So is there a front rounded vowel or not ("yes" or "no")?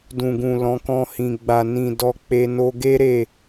no